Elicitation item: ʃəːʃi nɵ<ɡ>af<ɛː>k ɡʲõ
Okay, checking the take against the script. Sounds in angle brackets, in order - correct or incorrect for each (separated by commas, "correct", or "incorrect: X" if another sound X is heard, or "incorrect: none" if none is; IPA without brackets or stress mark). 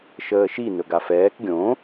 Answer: correct, correct